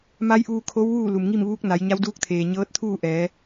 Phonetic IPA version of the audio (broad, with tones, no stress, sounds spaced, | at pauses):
m a˧˥ j ʔ uː˧ kʰ o˧˥ w ʋ uː˥˨ l u˩ m ŋ i˥˨ m ʋ uː˧˥ k̚ n a˩˧ j ɲ a˧˥ w d uː˧˥ k̚ t̪ʰ eː˩ ɲ ɤː˧˥ t̚ t̪ʰ uː˥˨ ʔ ɛː˩˧